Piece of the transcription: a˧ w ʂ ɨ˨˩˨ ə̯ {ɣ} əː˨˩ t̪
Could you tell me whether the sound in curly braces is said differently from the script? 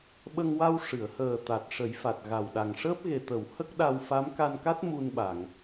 yes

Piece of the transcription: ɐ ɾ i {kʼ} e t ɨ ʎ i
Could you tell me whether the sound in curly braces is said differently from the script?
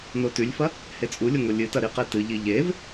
yes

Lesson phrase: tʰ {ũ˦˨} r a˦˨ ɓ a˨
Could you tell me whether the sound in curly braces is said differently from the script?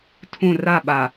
no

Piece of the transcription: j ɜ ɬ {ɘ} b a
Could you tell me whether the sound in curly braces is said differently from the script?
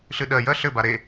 no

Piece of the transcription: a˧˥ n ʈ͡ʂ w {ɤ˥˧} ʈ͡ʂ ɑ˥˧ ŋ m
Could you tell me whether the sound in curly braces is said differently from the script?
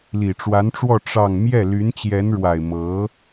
yes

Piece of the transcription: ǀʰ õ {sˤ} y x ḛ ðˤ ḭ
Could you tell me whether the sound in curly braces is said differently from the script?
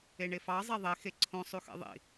no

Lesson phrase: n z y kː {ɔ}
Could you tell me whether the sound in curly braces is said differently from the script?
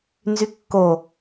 yes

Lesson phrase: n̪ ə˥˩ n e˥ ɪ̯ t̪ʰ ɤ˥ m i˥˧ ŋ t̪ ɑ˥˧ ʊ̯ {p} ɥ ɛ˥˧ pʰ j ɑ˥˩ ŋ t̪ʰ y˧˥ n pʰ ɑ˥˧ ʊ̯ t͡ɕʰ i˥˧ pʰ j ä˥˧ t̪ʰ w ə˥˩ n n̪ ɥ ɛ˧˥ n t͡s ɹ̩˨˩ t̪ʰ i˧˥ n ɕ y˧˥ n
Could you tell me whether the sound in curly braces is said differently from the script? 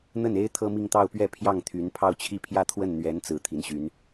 no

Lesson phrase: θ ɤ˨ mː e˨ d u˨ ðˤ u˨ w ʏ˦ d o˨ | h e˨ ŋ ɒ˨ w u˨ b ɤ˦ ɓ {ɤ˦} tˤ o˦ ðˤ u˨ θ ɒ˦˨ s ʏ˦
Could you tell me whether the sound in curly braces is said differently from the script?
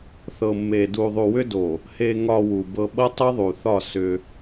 no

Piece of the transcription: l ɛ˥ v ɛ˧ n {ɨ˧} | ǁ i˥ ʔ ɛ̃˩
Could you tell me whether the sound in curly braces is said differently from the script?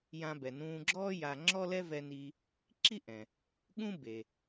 yes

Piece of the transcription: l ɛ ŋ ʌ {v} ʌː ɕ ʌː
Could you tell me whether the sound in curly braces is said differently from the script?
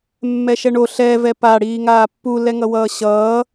yes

